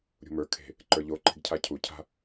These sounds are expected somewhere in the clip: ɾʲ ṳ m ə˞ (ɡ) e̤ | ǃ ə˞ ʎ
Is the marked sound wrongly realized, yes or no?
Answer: yes